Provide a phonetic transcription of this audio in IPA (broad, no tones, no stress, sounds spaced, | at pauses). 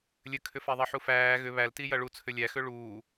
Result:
lʲ ɘ kʰ ʏ f æ ðˤ ɐ ħ u f æː ɣ ʏ β æ l t i j ɐ ɭ u t͡sʰ ʏ lʲ æ x ʏ ɭ uː